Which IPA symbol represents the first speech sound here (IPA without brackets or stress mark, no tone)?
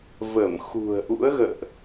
v